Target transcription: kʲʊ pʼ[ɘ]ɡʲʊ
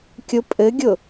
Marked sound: correct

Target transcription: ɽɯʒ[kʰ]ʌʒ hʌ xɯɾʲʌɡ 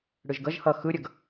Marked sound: incorrect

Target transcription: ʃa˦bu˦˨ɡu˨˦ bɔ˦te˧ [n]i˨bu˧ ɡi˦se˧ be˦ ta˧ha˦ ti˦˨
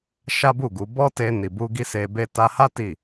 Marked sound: correct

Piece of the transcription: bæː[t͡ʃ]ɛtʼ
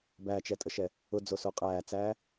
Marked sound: correct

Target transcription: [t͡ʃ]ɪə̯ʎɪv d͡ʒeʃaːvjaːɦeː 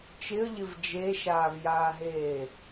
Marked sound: correct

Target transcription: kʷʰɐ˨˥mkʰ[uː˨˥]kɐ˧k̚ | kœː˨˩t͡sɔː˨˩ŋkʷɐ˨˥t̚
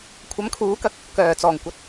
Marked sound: correct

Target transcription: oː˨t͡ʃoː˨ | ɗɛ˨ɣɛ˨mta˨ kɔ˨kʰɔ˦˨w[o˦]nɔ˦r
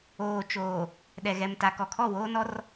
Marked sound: incorrect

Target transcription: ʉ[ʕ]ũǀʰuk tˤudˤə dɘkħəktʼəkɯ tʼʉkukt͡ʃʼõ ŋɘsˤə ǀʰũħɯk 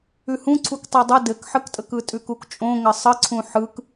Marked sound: incorrect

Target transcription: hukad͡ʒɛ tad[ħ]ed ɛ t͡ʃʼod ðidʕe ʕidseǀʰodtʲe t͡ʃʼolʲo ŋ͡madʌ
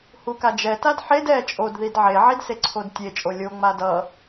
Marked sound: correct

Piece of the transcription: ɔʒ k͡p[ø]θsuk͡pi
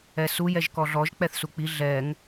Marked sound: incorrect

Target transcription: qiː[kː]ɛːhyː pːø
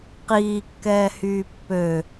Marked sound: correct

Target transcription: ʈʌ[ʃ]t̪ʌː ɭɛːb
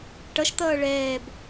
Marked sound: correct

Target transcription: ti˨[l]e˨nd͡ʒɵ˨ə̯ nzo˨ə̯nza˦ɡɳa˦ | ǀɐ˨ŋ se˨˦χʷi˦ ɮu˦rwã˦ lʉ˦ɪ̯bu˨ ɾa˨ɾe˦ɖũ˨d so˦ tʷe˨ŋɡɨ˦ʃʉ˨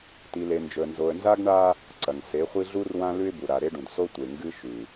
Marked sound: correct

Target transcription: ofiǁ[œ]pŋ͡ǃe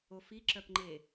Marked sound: correct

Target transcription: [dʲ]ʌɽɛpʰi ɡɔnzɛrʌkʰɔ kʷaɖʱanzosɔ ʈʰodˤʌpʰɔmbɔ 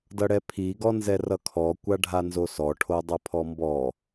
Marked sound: incorrect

